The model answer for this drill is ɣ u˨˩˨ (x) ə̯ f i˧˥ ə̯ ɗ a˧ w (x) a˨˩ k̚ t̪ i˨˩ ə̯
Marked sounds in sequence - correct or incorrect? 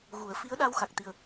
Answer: incorrect: none, correct

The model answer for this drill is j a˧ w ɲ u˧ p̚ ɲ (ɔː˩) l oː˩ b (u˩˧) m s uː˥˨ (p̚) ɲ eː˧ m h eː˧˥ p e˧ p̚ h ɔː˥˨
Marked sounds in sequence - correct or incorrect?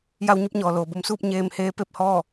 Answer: correct, correct, correct

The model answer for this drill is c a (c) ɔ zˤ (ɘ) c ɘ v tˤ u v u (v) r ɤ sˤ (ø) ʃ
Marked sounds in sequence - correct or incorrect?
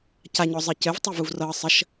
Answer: incorrect: ɲ, correct, correct, incorrect: ə

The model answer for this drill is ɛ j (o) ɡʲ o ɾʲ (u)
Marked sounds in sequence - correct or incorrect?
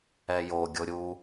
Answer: correct, correct

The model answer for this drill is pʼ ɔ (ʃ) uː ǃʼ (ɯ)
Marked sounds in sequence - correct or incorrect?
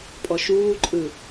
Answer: correct, correct

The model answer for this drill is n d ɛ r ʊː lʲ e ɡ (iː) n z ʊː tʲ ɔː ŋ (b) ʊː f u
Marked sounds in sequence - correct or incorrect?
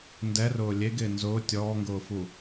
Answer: incorrect: ɪː, incorrect: ɡ

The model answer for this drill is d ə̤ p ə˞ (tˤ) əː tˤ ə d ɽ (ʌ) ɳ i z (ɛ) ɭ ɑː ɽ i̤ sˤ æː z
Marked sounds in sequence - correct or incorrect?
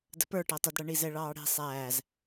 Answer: incorrect: ʈ, correct, correct

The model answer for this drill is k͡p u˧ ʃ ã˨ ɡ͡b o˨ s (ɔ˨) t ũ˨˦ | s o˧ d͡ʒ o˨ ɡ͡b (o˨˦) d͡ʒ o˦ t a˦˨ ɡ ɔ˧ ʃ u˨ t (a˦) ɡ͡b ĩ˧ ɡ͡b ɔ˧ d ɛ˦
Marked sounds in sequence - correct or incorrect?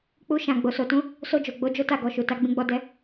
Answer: incorrect: o˨, correct, incorrect: a˧

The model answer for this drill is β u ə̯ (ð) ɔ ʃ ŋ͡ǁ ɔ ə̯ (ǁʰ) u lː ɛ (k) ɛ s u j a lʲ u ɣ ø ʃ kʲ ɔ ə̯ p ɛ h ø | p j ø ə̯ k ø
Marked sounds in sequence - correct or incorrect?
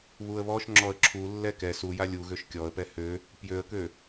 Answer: incorrect: β, correct, correct

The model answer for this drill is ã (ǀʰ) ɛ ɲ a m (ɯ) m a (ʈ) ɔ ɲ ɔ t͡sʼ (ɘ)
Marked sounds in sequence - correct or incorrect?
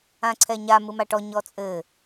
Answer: correct, correct, correct, correct

